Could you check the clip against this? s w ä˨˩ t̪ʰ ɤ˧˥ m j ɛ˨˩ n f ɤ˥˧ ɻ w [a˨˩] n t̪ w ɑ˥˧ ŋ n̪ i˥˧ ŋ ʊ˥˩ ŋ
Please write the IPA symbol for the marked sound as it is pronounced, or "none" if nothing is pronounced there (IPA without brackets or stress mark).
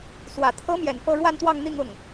a˥˧